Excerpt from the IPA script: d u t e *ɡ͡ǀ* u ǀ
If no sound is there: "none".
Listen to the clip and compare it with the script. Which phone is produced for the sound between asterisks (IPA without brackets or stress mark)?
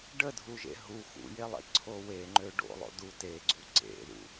ɡ͡ǀ